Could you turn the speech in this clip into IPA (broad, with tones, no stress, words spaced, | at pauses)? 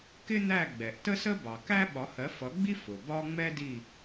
kɪ˥n̪æ˦˨ ɡ͡bɛ˩ʔ tə˥sə˥ bɑ˩kæ˥ ɓɒ˨˥hɜ˨˥fʌ˨˥ ɡ͡bi˥ fʊ˩ bɒ˥ ŋ͡mɛ˥di˦˨